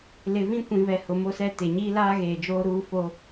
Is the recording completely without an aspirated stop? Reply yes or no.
yes